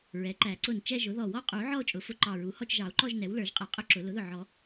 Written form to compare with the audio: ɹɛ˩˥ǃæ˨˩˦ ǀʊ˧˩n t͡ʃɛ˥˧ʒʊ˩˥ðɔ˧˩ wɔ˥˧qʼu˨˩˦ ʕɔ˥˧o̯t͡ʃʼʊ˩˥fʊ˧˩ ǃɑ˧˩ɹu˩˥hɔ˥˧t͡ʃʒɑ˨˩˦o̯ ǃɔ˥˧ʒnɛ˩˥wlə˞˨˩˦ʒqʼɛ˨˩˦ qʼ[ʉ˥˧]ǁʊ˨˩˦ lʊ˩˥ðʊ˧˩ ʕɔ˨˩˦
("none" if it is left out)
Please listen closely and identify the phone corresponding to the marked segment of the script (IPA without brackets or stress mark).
ʊ˥˧